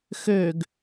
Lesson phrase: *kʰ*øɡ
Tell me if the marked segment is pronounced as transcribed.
no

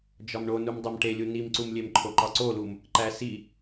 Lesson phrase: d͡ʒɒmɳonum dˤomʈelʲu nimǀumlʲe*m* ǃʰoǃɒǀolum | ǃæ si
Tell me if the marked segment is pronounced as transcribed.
yes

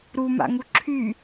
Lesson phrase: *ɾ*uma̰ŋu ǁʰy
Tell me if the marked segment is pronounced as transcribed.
yes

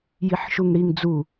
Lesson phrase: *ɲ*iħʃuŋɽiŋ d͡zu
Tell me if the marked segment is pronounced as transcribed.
no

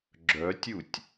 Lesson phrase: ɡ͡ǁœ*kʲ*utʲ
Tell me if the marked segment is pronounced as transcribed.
no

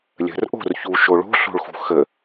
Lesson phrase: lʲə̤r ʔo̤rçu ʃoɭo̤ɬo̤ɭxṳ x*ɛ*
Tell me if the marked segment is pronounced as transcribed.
no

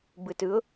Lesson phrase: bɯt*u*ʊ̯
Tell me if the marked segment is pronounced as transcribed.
no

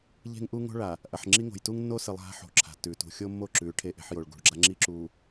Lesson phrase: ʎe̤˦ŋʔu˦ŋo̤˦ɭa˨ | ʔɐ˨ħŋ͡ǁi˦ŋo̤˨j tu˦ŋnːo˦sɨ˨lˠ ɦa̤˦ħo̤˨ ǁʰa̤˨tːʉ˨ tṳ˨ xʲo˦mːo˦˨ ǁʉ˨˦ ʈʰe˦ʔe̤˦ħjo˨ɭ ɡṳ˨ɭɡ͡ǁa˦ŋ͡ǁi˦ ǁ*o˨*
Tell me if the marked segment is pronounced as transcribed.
no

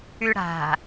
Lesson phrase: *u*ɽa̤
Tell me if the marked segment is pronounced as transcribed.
no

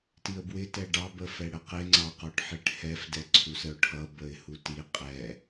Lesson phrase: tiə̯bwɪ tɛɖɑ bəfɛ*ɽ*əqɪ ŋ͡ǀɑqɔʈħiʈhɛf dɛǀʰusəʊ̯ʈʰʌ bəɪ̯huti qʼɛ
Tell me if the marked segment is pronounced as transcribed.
yes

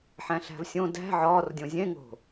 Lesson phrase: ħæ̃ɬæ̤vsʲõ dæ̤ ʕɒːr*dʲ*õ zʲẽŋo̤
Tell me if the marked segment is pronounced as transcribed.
yes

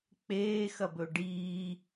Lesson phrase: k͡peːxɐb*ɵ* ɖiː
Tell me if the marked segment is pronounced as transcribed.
yes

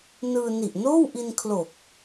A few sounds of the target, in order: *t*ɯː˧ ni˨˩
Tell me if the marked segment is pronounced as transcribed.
no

